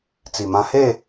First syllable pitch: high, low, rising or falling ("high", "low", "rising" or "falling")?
low